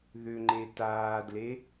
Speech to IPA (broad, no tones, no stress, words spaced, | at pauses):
ðʏŋ͡ǃe taːdle